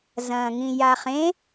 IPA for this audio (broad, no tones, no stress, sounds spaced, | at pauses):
z ɐ̃ː ŋ ĩ j a χ ẽ